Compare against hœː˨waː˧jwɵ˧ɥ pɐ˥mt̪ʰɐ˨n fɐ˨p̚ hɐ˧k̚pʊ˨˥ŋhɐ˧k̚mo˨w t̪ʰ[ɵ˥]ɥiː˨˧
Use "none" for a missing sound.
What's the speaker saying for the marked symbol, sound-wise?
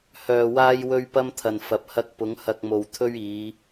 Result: ɵ˥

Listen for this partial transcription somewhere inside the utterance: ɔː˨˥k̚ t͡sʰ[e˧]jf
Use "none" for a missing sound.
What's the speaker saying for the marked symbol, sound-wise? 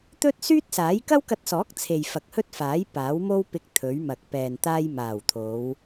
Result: e˨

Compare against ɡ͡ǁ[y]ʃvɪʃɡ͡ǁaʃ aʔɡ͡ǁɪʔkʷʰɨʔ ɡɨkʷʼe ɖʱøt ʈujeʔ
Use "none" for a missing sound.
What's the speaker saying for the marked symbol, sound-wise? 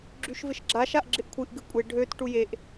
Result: y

